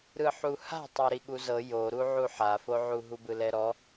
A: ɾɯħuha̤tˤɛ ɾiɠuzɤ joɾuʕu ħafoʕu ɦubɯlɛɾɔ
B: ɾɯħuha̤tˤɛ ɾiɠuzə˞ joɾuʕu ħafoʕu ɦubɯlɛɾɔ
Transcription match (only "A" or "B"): A